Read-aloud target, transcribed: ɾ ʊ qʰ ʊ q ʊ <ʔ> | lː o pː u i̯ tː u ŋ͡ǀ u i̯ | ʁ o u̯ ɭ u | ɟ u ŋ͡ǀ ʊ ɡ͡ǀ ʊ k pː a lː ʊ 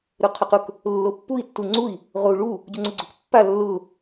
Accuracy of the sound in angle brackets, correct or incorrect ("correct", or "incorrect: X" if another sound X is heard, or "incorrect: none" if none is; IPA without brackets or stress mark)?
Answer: incorrect: k